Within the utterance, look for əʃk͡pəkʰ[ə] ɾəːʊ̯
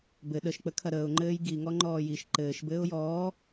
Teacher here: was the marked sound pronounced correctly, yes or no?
no